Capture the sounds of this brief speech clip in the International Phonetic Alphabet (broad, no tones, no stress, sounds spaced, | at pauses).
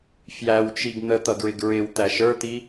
f j æ w t͡ʃ i ɡ n̪ ə t̪ ʌ ɡ ɹ ɪ ɡ ɹ ɪ w t̪ æ ʃ ə˞ t̪ i